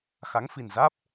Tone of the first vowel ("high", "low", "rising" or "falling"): rising